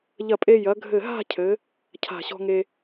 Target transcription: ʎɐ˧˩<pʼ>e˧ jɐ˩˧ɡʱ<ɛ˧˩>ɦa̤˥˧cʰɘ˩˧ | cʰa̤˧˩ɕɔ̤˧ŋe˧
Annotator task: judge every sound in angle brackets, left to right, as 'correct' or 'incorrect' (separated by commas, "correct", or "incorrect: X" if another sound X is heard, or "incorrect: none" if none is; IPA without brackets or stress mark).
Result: correct, incorrect: ɘ˧˩